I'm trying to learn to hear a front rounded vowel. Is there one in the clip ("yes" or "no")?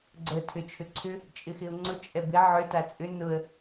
yes